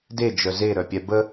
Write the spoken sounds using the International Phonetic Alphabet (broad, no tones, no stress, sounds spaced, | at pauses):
d e d͡ʒ œ z e ɾ œ pʲ ɛ b ə